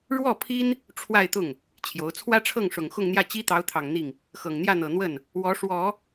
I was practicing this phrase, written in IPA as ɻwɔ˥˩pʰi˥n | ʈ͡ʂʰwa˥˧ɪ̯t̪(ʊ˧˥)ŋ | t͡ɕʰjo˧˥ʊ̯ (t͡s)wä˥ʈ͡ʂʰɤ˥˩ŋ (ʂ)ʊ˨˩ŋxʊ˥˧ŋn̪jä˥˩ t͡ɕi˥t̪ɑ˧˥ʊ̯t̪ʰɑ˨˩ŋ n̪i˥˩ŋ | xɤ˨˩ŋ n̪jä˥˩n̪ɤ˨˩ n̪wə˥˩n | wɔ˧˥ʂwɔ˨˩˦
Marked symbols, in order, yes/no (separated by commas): no, no, yes